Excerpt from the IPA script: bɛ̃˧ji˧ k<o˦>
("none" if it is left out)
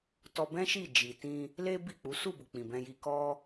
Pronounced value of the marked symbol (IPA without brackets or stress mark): ɔ˦